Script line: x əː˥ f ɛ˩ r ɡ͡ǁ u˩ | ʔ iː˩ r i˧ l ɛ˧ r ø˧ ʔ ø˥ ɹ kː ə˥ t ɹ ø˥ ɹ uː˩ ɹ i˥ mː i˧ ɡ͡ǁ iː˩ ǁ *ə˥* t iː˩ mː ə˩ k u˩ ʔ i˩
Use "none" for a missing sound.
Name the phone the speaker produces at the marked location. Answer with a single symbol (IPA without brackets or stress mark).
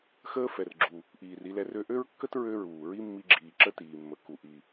ə˥